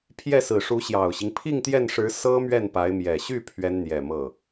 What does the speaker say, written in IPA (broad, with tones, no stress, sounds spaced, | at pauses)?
pʰ j ɛ˥˩ s ɹ̩˨˩ ʂ u˧˥ ɕ j ɑ˨˩ ʊ̯ ɕ i˦ ŋ pʰ i˥˧ ŋ t̪ j ɛ˥˩ n ʂ ɻ̩˧˥ s ɤ˥ m ɥ ɛ˥˩ n p a˧˥ ɪ̯ m j ɛ˨˩ ɕ y˥˩ pʰ ɥ ɛ˥ n n̪ j ɛ˨˩ m ɤ˥˩